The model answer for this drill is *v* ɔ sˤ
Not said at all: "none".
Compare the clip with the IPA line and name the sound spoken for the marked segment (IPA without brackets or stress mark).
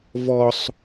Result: v